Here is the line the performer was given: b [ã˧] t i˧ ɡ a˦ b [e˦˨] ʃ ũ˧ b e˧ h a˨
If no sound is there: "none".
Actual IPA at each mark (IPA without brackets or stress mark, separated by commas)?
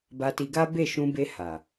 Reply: a˧, e˦˨